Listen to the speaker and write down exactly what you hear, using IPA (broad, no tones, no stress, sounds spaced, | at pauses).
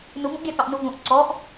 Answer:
n u ŋ ũ ʔ ɡʲ ɑ k ɑ ʔ n u v ũ ʔ ǀ ɔ ʔ